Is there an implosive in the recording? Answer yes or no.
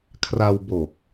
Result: no